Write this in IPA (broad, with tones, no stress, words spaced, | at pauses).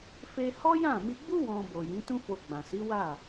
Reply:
fe˧ hɔ˦jã˦˨mi˧ ɡ͡bu˦ wɔ̃˧ bo˨ jĩ˨˦tũ˦fo˧ ɡ͡bã˨si˨˦wa˦˨